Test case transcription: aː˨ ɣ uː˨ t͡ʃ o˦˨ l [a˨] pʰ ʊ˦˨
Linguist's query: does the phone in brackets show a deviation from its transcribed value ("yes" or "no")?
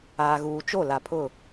no